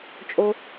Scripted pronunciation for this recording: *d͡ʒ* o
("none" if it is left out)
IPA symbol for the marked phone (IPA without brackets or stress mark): t͡ʃʼ